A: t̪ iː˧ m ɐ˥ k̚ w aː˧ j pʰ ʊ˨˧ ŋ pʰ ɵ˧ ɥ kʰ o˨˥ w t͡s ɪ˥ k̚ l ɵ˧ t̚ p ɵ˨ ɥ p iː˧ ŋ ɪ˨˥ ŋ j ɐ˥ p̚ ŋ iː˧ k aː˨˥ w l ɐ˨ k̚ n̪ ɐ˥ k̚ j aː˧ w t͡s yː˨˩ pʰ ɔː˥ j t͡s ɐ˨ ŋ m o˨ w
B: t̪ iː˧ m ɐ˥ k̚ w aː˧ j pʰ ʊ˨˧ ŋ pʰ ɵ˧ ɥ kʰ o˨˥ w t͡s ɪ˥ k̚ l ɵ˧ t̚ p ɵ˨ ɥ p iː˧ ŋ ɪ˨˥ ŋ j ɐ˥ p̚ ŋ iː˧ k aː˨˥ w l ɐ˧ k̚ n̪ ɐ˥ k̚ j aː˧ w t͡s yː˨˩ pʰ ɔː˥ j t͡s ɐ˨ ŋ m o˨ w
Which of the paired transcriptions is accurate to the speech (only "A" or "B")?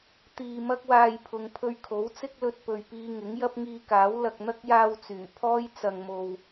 A